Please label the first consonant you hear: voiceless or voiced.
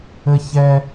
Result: voiceless